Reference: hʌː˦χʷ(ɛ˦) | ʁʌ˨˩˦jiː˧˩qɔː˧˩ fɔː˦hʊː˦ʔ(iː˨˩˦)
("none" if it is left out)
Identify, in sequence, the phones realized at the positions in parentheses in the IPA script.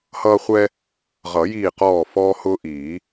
ɛ˦, iː˨˩˦

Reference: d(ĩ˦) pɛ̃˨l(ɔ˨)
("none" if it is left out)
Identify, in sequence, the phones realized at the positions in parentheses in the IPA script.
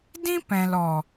ĩ˦, ɔ˨

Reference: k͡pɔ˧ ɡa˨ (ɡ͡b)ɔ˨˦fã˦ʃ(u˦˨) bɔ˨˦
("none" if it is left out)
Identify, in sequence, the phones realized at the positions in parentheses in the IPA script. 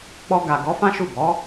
ɡ, u˦˨

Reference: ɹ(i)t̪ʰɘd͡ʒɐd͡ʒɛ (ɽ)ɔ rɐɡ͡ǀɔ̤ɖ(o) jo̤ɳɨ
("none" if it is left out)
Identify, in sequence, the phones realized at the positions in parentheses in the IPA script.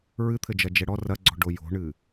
ɨ, ɽ, o

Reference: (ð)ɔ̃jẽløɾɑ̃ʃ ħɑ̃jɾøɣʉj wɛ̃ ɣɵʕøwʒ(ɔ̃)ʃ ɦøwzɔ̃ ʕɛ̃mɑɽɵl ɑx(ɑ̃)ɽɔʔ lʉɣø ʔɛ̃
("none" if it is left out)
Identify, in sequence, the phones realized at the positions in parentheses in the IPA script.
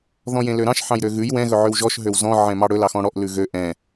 ð, ɔ, ɔ̃

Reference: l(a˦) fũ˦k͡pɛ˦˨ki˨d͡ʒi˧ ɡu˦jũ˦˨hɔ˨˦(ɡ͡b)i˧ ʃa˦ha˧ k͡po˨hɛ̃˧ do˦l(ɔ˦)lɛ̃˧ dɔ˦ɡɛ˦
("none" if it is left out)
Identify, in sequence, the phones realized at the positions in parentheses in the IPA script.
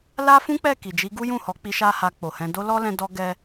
a˦, k͡p, ɔ˦

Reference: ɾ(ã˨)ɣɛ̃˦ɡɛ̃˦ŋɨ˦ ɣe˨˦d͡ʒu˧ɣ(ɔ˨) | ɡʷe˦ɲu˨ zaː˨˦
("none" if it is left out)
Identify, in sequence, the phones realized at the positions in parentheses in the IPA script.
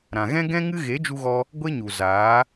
ã˨, ɔ˧

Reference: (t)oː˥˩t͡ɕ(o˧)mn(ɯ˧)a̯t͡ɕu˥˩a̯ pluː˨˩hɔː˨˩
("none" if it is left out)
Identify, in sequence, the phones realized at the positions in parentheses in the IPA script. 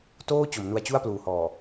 t, o˩˦, u˧

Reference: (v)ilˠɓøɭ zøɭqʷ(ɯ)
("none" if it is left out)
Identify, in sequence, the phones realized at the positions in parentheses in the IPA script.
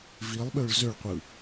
v, ɯ

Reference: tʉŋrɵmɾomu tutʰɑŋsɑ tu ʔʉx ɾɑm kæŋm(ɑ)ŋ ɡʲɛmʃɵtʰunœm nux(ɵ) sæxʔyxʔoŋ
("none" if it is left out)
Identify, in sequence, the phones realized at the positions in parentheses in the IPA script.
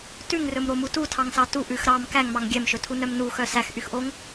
ɑ, œ

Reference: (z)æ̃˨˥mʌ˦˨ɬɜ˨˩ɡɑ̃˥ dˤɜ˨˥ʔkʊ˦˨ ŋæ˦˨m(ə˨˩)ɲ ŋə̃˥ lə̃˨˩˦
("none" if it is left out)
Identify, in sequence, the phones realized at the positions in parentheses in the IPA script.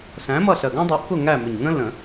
ɬ, ʊ˨˩

